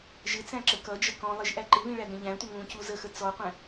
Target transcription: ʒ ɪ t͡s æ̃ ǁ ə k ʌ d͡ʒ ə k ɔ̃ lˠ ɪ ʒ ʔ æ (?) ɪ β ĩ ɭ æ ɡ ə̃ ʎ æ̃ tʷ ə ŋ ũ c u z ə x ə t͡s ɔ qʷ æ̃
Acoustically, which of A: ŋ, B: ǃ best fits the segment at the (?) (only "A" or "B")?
B